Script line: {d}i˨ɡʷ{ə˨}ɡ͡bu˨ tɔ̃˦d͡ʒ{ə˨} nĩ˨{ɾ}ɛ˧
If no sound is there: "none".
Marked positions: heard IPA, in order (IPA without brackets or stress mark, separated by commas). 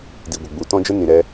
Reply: d, ə˨, ə˦, ɾ